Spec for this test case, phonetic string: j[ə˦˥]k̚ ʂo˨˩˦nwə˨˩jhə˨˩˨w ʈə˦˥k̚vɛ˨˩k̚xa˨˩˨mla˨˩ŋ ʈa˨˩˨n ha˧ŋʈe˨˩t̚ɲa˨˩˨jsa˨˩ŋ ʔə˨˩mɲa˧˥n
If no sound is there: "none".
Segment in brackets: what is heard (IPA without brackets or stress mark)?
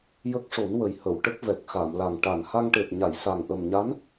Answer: ə˦˥